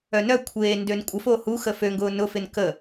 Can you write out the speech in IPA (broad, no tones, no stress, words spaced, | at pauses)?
œnœkʷʰeː ndønkʷʼəfo huxə føŋɡʊː nʊfɪn kə